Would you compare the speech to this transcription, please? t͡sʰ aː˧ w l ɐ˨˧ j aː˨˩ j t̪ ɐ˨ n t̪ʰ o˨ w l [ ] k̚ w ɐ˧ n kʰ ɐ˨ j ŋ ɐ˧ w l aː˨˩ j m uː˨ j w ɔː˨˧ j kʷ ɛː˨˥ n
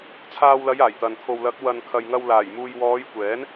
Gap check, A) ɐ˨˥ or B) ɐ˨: A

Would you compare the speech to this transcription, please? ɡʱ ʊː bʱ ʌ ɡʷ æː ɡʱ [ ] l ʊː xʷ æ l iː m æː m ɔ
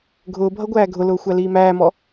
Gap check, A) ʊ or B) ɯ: A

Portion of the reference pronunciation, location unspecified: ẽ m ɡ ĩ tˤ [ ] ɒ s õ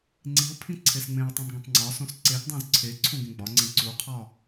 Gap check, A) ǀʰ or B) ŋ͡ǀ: B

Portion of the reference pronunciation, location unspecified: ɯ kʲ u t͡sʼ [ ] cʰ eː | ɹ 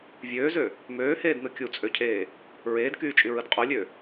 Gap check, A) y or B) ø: B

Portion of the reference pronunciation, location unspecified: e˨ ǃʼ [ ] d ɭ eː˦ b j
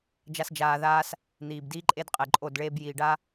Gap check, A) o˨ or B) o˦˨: B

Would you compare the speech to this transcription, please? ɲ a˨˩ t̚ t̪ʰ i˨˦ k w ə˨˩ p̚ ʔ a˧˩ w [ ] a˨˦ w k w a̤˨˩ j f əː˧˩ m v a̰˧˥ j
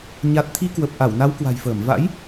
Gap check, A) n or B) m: A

